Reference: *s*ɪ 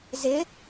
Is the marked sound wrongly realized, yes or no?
yes